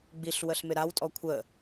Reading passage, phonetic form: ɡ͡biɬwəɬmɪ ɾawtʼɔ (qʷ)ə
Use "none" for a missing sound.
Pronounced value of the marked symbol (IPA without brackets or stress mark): kʷʰ